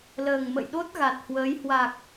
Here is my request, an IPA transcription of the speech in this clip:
l əː˨˩ ŋ m ə̰˧˨ j ɗ o˦˥ t̚ ɣ a˨˩ t̚ h w əː˨˦ j h w a˨˩ k̚

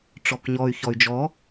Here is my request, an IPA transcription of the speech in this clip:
ʈ͡ʂ ɔ k ɲ ɔ y̯ ç ɔ y̯ d͡ʒ ɔ

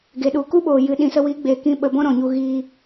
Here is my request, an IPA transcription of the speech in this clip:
ɡ e˨ ɗ u˨ k u˦ ɓ oː˨ j ɨ˧ ɗ ĩ˧ s ə˦ w i˨˦ ɡ͡b e˨ k ĩ˧ ɓ ə˧ b ɔ̃˦ ɾ ɔ̃˨ ɲ u˧ ɣ iː˧

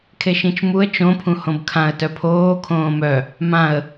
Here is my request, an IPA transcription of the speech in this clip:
kʰ e ʃ ĩ t͡ʃ m u ə̯ t͡ʃ õ pʰ ũ h õ b kʰ ã ə̯ t œ pʰ oː kʰ õː m œ | m ã ə̯

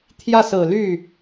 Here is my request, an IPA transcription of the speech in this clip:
t̪ʰ j ä˥˩ s ɹ̩˨˩ l y˥˩

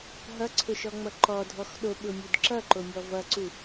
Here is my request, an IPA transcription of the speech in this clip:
ɦ ʌ ǀʰ ʊ ʃ ɔ ŋ͡m ʌ ǃ ɔ dʱ ɔ x ɗ o ɓ ʊ mʲ u d ǁ ʌ ǃ o mʲ ɔ v ʌ ǀ u

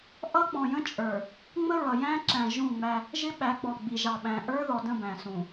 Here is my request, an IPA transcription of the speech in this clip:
ʔ ʌ˦ k͡p ɔ̃˨ j ə̃˦ t͡ʃʼ ə˞˨ | ŋ͡m ə˦ ɹ ʌ˨ j æ̃˦ ǁ æ̃˨ ʒ ũ˦˨ ŋ͡m æ˦ | ʒ ɪ˦ ɓ æ˨˦ ɡ͡b ɔ˨ ɡ͡b i˨ ʒ ɑ˨ ɓ æ̃˨ ʔ ə˞˦ ð ɔ˨ d ə̃˦˨ b æ̃˨ s ũ˨

